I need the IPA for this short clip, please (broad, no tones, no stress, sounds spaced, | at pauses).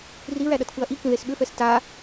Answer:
r i ɹ æ ɗ ʌ t k ɯ ɐ̯ ʔ i k ĩ ð e s ɓ ʏ f ɛ s t a